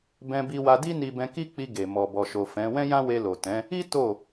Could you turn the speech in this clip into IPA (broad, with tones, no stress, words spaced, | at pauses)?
bɛ̃˧bi˧wa˧di˦ ni˧bɛ̃˧ki˦k͡pi˧ ɡe˨ mɔ˨bɔ˨ʃo˨ fɛ̃˨˦ wɛ̃˦jã˦we˧ lo˨tɛ̃˨˦ | i˦ to˦˨